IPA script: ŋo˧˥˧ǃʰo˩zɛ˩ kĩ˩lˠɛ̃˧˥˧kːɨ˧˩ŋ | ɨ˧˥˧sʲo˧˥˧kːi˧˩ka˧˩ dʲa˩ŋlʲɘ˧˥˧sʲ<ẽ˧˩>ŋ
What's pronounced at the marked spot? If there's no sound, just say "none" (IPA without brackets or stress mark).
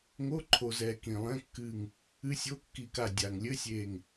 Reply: e˧˩